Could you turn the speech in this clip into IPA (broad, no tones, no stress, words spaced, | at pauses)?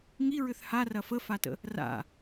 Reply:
ŋiɹʏθ harɐ fəfatə̰ | ra̰